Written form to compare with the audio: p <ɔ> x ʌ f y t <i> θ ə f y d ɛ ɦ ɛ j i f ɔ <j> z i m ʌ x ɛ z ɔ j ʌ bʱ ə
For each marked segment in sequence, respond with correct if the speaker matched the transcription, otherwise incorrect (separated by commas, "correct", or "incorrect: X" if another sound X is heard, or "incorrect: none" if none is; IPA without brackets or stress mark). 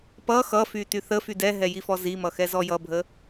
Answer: incorrect: ʌ, incorrect: y, incorrect: none